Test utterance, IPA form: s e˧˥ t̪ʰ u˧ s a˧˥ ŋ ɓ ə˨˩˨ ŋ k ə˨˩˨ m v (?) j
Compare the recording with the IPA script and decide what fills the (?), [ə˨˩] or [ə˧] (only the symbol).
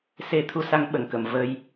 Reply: ə˧